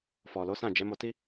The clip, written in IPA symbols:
fɔ˨lo˨˦sã˦˨ d͡ʒɛ˨˦mo˧ti˦

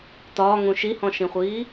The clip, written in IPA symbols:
tɒːŋũ ʃihɔ̃ʃĩχʷiː

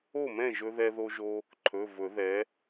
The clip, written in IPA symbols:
o˥˨mɛ̃˥˨ʒɵ˧ ðɛ˧ðo˧ʒo˧ | ǃʰɵ˩˧˩vɵ˨˩˦ðɛ˩˥

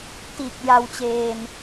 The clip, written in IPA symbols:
tiː˨˩k̚ ja˧wt͡ɕeː˧n

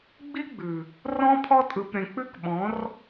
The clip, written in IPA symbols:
ɡ͡bi˦ɡ͡bʉ˨ | rɔ̃˦ pʰɔ˧tʼɯ˨p ɾẽ˨k͡pʉ˦kɓɔ̃˨˦r

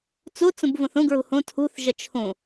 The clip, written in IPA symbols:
t͡sut͡sũbvũθ ũɡɹṳ hũ tʰṳθʒə t͡ʃʰũ

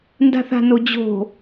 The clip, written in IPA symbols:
nda̤θa̤nod͡ʑo̤

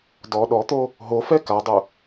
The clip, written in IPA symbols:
dɔ ɗɔt̪o | ɦo fɛkadˤu

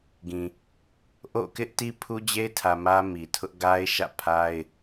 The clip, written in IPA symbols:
ɡĩ˨ | ʔo̰˦˨kɪ˦ʔti˦ pʰu˦d͡ʑe˦ɪ̯tʰä˨ mä˦mi˨tʰʊ˦ʔ ɡa˦ɪ̯ʃä̰˦˨pʰa˦ɪ̯

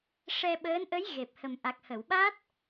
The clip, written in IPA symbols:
ʂɛ˧ɓəː˧˥nʔə˧˥j ɣe˨˩p̚hə˨˩m ʔa˨˩k̚hə˨˩˨wɓa˦˥t̚

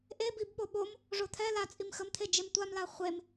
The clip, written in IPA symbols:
ʔebibɓo ɓom | ʐot̪ʰɛ lat͡sʼim xəmt̪ʰe d͡ʒemtʷamla χʷem

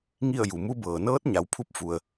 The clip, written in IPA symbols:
ŋi˥˨ə̯ju˩mu˧˥bɤː˩ nɤː˧˥t̚ɲa˩wpʰu˧p̚ fu˩ə̯

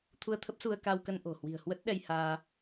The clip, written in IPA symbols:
t̪ʰu˧ə̯t̪ʰə˦˥p̚ su˧ə̯ ka˧wkə˧n ʔo̤˨˩ hwi̤˨˩ə̯hwə˦˥t̚ɗɛ˧jhaː˧

